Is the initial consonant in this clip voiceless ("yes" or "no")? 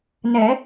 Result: no